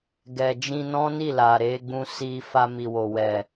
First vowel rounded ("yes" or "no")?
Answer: no